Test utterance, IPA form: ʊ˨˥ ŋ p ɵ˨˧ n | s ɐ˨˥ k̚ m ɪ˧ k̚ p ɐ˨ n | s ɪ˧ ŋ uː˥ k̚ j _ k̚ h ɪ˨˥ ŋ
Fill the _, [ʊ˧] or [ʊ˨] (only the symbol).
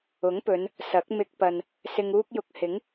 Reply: ʊ˧